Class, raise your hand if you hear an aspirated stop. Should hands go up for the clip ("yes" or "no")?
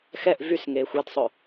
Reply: no